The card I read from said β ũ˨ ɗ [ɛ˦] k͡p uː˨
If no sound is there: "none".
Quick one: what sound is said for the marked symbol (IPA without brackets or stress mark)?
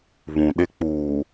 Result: ɪ˦